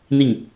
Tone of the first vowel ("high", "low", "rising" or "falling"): falling